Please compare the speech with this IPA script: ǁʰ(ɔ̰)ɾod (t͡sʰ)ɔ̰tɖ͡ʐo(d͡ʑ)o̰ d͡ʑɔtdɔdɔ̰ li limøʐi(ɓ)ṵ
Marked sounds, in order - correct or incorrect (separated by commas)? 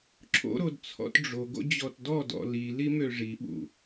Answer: incorrect, correct, incorrect, correct